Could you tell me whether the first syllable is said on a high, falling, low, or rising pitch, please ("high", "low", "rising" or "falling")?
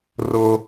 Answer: high